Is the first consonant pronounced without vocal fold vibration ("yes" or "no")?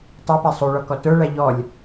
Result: yes